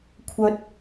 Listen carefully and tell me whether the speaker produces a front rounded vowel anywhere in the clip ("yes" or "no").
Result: yes